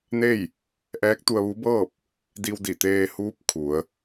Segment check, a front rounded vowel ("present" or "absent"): absent